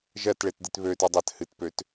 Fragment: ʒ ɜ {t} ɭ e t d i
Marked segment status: correct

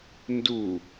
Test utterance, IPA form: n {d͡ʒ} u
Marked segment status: incorrect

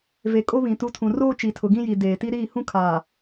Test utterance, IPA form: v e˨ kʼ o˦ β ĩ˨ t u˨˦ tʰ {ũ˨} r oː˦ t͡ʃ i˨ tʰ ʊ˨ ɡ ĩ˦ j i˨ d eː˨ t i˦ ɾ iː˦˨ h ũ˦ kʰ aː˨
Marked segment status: correct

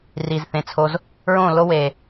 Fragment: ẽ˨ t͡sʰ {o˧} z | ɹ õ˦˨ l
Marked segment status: correct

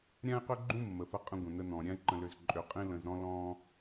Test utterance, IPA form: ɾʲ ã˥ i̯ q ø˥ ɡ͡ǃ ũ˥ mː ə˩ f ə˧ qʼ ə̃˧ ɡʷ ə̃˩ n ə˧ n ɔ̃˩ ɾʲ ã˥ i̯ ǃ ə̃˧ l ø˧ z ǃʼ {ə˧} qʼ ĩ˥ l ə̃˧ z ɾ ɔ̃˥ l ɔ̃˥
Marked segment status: incorrect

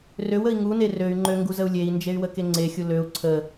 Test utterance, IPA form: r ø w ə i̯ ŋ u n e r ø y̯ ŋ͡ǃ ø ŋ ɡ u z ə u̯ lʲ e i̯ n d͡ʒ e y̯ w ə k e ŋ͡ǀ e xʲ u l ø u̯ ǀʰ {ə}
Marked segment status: correct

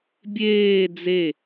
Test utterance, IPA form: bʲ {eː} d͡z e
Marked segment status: correct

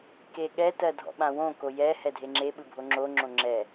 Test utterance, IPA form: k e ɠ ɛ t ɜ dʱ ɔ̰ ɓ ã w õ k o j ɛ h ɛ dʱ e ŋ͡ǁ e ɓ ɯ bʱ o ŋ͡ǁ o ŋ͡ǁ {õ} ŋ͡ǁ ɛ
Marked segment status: correct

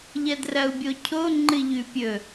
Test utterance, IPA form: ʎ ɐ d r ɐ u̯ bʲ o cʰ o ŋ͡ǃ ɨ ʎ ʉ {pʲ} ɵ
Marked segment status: correct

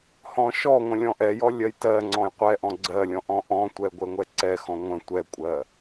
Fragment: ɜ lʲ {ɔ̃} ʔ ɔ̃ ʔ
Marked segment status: correct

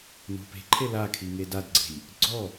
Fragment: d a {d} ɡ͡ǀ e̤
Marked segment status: correct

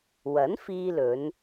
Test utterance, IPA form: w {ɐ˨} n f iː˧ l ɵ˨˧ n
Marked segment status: incorrect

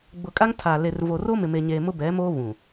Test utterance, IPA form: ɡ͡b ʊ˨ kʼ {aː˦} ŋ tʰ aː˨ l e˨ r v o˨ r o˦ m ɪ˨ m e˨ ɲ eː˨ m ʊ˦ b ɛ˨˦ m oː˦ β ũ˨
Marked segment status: incorrect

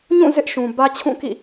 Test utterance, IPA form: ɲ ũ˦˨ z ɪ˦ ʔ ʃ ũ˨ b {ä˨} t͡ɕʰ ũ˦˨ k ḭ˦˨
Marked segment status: incorrect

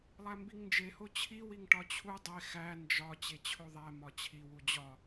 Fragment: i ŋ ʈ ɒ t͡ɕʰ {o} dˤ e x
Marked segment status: incorrect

